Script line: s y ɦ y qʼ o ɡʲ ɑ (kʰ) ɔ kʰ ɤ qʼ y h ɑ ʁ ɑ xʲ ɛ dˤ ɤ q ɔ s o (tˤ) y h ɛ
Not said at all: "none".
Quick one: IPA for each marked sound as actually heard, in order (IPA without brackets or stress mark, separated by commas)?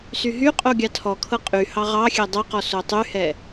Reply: tʰ, tˤ